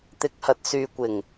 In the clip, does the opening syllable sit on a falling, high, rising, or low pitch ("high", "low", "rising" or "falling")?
rising